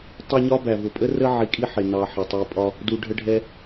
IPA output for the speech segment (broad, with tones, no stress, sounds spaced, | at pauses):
tˤ ɜ˦ ɲ ɒ˥ b æ˩ v ʊ˩ pʼ ə˦ r ə˦ ʕ i˨ kʼ i˦ ħ ɪ˩ n ɑ˨ ħ ɪ˩ tˤ i˨ pʼ ɒ˦ | d u˩ ɖʱ ə˨ ɖʱ ɛ˨